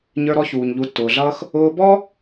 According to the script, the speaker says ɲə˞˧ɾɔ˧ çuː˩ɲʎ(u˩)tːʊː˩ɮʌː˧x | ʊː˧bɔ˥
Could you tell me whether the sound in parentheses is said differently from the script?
yes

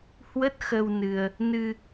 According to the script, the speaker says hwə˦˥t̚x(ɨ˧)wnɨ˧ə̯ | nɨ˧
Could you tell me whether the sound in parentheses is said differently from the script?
yes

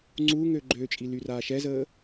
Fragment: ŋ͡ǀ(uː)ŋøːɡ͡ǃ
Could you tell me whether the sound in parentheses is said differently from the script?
no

